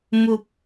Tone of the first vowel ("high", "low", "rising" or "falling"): low